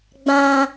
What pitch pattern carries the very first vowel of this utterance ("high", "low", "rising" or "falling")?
high